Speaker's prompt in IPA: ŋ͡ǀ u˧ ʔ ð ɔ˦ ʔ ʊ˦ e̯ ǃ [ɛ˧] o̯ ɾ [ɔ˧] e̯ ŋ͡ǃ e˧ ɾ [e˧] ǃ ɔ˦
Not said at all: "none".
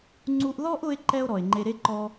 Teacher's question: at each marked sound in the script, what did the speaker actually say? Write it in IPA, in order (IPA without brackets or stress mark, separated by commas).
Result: ɛ˦, ɔ˨, e˦